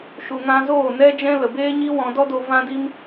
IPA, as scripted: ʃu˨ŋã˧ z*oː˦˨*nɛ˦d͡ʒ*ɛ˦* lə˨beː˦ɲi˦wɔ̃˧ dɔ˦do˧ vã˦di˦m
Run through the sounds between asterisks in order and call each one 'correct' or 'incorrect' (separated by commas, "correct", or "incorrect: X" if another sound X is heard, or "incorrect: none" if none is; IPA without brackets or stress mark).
correct, incorrect: ɛ̃˦